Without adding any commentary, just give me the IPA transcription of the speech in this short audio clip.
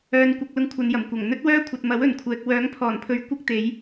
œː˨ n kʷ ɐ˧ k̚ l ʊ˧ ŋ kʷʰ ɐ˨ n j ɐ˨˩ m kʷ ɐ˨˩ ŋ n̪ ɵ˥ t̚ w œː˥ kʷʰ ɐ˨ t̚ m ɐ˨˥ w ɵ˨˩ n kʷʰ ɛː˨ k̚ w œː˨˥ ŋ pʰ ɔː˨˩ n pʰ ɵ˨˧ ɥ kʷ ɐ˥ k̚ t̪ e˨˥ j

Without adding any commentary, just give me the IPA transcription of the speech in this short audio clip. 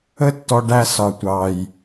ə˦ tː ɔ˧ ɖ æ˧ s ɒ˨ tʷ ɑ˨ j

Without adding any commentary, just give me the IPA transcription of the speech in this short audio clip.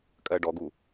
kʼ ɜ ɖ ɔ ɡ u

